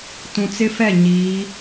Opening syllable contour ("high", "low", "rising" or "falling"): low